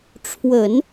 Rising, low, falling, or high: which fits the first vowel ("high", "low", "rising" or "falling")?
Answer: low